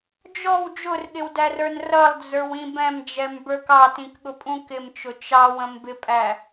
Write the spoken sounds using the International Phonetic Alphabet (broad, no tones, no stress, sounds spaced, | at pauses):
d͡ʒ ɔ w d͡ʒ ʊ r ɠ ɪ w d æ r ə˞ n r ʌ lˠ d͡z ə˞ w ĩ b ɛ̃ m d͡ʒ ɛ m b ə˞ k ɑ t ĩ k ɠ ʊ pʼ ũ k ɪ m t͡ʃ ʊ t͡ʃ ɑ w ə̃ m b ɪ pʼ æ